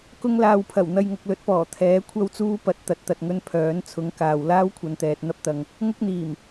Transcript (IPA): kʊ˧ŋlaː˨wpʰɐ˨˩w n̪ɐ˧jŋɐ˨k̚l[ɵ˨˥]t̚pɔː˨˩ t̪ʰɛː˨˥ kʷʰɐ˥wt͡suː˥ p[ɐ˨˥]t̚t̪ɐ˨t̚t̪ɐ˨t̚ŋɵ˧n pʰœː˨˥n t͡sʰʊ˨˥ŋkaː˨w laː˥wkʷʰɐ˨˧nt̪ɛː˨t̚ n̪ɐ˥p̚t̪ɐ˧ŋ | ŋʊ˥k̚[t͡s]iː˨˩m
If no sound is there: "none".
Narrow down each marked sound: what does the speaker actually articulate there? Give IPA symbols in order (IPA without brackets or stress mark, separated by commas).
ɵ˨˥, ɐ˨˥, n̪